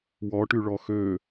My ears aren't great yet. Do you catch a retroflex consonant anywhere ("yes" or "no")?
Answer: yes